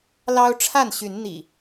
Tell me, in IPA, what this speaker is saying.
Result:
l ɑ˦ ʊ̯ ʈ͡ʂʰ a˥˨ n ɕ y˨˦ n n̪ ḭ˨˩

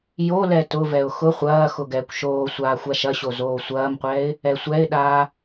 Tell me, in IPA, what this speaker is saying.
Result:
j o l ɛ t ʊ v ɛ ʊ̯ x ʊ χʷ ɐː x ʊ ɡ ɛː kʷ ʃ oː sʷ aː xʷ a ʃ ɐ ɕ o z oː sʷ ɐː m qʷ ɛː ɪ̯ | ɛ sʷ ɛ ɪ̯ ɗ aː

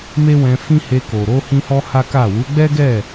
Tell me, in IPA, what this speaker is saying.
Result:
m e˦ w ɛ̃˧ f ĩ˦ h e˧ k o˨ ɾ o˧ h ĩ˦ h ɔ˦ h a˦ k a˦˨ w u˨˦ ɡ͡b ɛ˦ ɡ ɛ˦˨

